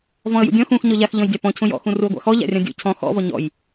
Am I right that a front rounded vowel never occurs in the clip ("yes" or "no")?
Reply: yes